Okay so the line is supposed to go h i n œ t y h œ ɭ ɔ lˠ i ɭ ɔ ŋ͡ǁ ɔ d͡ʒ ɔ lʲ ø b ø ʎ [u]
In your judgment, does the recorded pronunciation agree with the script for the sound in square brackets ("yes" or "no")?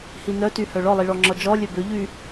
no